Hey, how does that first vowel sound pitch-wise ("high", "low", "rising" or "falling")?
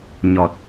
low